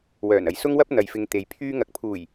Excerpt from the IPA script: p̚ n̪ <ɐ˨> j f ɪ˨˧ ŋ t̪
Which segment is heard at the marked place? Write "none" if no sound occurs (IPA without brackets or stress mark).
ɐ˨